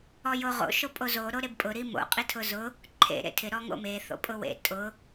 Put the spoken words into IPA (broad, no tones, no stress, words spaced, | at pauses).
ɔjoʁo̰ ʃopʼozo ɾoɾebpʼʊ ɾimo̰ qʼitʰʊzʊ | ǃʰḛ ɾḛtʰɪ ɾɔŋo̰me θo̰pʼʊwḛ tʼʊ